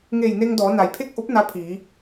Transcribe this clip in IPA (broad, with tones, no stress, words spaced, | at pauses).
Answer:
ŋe˧˩jne˧ŋ dɔː˩˧na˩jpʰe˥˨k̚ʔo˧˥p̚ na˧˥pʰiː˩˧